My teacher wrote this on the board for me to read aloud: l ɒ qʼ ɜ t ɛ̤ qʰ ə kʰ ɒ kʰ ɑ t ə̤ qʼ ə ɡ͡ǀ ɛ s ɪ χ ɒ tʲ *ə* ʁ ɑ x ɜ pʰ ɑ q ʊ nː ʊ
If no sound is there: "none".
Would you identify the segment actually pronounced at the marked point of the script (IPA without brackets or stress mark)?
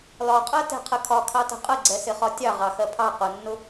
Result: ɑ